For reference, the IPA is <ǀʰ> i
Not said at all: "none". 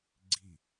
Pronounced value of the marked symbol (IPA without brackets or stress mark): ɡ͡ǀ